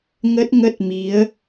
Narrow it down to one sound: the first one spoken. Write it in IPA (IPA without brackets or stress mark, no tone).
ŋ